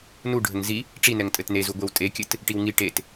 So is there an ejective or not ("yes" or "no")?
yes